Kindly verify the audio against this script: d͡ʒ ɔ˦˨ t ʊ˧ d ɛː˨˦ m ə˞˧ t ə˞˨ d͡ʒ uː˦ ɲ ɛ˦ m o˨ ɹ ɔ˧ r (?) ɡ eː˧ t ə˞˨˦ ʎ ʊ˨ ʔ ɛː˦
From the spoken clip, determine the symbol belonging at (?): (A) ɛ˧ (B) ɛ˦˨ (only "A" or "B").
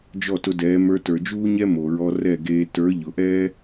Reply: B